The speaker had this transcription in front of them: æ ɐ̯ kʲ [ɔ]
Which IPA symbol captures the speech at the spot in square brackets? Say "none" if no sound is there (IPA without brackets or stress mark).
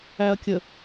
ə